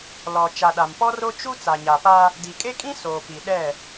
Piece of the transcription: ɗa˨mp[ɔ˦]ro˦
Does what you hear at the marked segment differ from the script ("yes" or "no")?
no